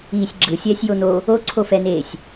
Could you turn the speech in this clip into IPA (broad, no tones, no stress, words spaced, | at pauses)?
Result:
iːsʲɡ͡ǁɯ sʲɛːsʲjono | oǀʰofɛneːsʲ